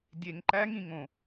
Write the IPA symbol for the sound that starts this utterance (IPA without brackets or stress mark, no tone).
dʲ